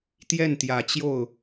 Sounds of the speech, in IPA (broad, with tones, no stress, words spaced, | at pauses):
t̪jɛ˥˩nt̪jä˨˩t͡ɕjo˥˩ʊ̯